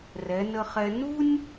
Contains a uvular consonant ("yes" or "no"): yes